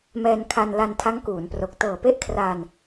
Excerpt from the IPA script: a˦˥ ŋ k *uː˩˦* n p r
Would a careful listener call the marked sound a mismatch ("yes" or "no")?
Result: no